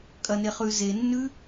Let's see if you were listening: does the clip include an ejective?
yes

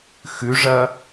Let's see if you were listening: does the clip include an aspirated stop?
no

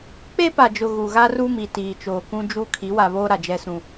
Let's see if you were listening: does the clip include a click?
no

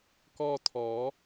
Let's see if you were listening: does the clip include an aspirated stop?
yes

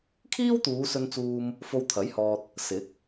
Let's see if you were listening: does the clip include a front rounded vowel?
no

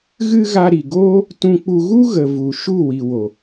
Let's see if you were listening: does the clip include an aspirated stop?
no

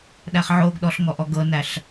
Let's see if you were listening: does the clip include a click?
no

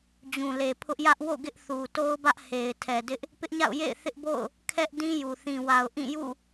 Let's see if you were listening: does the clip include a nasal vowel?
yes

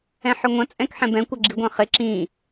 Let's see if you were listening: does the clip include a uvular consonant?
yes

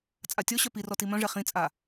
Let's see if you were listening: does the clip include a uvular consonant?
yes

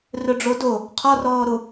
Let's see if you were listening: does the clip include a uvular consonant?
yes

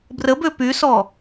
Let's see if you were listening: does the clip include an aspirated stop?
no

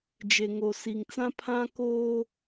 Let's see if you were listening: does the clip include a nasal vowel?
yes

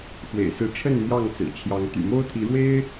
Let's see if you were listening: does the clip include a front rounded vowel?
yes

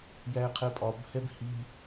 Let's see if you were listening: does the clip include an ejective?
yes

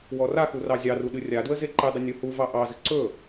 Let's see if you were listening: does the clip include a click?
yes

